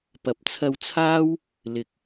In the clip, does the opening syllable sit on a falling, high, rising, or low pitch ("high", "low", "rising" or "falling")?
rising